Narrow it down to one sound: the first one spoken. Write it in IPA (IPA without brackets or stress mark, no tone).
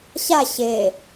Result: ɕ